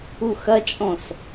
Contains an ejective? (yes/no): yes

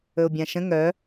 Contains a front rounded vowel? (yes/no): yes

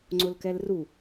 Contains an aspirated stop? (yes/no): no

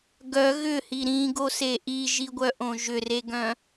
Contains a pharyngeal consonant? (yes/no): no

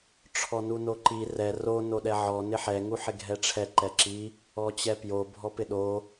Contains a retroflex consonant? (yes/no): yes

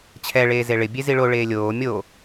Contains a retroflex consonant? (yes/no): yes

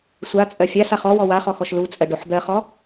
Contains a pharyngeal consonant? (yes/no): yes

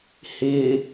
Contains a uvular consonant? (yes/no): no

